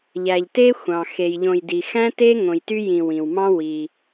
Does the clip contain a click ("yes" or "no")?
no